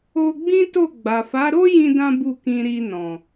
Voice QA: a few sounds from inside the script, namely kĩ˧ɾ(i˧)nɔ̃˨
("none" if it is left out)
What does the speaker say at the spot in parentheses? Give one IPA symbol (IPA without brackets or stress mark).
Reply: i˧